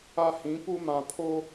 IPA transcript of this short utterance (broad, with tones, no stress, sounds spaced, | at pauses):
a˦ h ĩ˨˦ p u˦ m ã˨ pʰ o˦